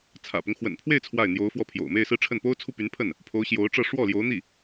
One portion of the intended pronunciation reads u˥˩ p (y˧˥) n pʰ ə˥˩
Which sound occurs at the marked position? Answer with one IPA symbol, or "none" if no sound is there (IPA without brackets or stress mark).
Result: y˧˥